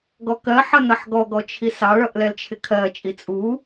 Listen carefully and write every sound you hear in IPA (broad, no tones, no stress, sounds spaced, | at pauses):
ɡ ɔ k ɜ ħ ʌ n ʌ ħ ɡ ɔ ɡ ɔ t͡ʃʰ i s ɑ ɭ ʌ ʔ l ɛ l t͡ʃʰ ɪ kʰ ɜ t͡ʃʼ i t͡sʼ u